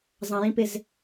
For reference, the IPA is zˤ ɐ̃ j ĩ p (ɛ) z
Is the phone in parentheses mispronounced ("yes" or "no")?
yes